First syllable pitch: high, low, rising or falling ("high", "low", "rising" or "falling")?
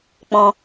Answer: low